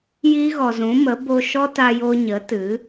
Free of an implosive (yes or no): yes